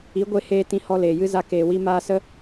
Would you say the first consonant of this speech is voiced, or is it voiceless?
voiced